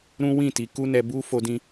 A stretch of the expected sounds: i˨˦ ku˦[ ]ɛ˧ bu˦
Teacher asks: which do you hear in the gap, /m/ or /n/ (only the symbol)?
n